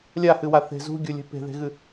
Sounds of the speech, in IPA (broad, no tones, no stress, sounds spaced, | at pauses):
lʲ a h ɨ w a θ e̤ z ṳ ɡʲ o lʲ ɛ̤ p e̤ ð e̤ ɣ ɨ